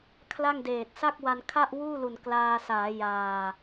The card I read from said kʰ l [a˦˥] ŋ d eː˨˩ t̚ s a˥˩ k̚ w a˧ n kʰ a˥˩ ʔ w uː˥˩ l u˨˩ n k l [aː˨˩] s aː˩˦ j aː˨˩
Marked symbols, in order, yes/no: no, no

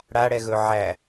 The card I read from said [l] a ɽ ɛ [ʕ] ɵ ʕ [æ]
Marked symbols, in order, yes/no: no, no, yes

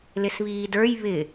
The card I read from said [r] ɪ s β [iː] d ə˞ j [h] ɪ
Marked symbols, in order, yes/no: no, yes, no

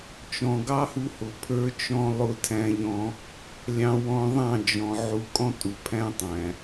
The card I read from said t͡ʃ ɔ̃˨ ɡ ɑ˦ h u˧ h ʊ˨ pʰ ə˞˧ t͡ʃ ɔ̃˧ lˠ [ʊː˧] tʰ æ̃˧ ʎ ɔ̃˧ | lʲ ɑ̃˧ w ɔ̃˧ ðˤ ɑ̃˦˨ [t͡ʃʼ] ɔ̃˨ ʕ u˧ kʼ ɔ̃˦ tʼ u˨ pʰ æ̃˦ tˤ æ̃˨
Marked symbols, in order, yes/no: no, no

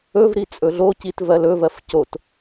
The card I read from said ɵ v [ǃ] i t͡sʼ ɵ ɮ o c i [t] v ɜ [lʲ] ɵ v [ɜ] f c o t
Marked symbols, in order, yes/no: no, yes, no, yes

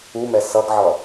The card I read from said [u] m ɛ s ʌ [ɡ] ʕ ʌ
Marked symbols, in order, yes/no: yes, yes

